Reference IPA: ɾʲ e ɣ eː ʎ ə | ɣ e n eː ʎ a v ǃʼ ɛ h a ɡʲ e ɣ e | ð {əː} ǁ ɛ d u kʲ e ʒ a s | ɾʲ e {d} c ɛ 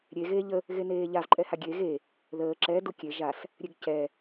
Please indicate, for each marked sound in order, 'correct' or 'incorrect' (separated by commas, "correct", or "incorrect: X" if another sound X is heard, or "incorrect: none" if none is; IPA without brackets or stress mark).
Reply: correct, incorrect: ɡ